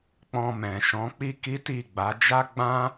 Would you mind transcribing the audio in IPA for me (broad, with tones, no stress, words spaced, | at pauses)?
k͡pɔ̃˧mɛ̃˨ʃɔ̃˨˦ k͡pi˦ki˦ ti˦˨ɡ͡ba˨˦ d͡ʒa˦ɡ͡bã˦